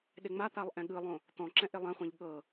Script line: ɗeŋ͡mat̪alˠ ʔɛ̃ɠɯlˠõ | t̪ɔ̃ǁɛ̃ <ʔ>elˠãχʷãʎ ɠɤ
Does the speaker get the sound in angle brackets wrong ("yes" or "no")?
no